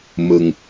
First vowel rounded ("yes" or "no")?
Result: no